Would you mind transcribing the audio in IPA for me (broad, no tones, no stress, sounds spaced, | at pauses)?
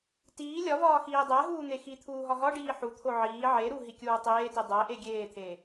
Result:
t iː lʲ ɒ v ɒː x iː dˤ æ ɦ uː n̪ e x i t̪ʰ uː ɦ ɒ ɦ ɒ ɖ iː ħ u t̪ʰ o ʕ iː ʕ e ɾ u ɦ i kʲ uː tˤ eː t i dˤ æ ʔ e ɡʲ eː t̪ʰ eː